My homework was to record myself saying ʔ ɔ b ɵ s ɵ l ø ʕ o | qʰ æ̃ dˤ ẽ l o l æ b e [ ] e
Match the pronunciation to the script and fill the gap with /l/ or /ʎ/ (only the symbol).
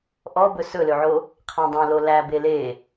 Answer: l